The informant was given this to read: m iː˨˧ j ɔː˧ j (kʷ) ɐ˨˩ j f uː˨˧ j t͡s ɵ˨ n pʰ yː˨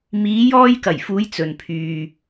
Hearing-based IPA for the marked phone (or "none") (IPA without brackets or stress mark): k